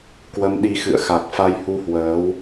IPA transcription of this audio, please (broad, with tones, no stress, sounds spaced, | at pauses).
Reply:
k w ə˨˦ m ɗ i˨˦ x ɨ̰˧˨ ə̯ x a˨˩ k̚ f a˧ j h u˧ h w əː˨˦ w